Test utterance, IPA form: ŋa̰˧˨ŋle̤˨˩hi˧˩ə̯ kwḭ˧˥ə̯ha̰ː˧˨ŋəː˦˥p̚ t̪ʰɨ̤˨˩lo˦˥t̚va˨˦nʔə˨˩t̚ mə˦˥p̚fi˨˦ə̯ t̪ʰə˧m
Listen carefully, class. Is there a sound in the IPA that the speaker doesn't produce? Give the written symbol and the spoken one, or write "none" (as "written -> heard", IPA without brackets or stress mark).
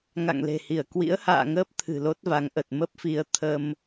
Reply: n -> ŋ